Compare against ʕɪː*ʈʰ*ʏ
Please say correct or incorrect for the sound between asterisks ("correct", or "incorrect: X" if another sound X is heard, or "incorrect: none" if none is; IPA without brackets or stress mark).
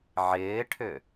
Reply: correct